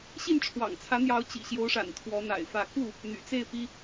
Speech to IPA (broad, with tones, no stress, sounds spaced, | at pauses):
ɕ i˥˨ n ʈ͡ʂʰ w ɑ̰˨˩ ŋ t͡sʰ ä˨˦ n̪ j ɑ˨˦ ʊ̯ t͡ɕ ḭ˨˩ ɕ j o˨˦ ʊ̯ ʂ a̰˨˩ n t̪ʰ w ɔ˨˦ n̪ a̰˨˩ ɪ̯ f ä˥˨ k u˥˨ | n̪ y̰˨˩ t͡s e˥˨ ɪ̯ p i˦